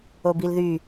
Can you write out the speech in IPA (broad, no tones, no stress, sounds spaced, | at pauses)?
o b i l ð y